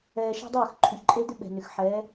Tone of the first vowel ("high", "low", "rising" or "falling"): low